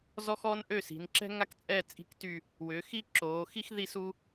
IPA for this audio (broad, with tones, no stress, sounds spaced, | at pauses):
z ɔ˥ x ɔː˥ n ʔ ø˥˧ s i̤˩˧ n ǁ ɛ̤˥ ŋ a˥˧ k t͡sʼ ɛ˥˧ t͡sʼ i̤˥˧ k t y˥˧ | w ʏː˩˧ x i˥ ǁ oː˩˧ x i˥ x ð i˥˧ s u˥